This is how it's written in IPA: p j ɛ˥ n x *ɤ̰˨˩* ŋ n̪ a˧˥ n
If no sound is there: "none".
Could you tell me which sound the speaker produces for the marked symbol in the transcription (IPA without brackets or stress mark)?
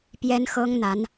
ɤ˥